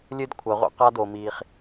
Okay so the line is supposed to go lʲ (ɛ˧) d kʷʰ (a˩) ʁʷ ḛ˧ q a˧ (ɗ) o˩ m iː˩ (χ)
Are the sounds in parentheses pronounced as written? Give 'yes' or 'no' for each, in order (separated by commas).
no, yes, no, yes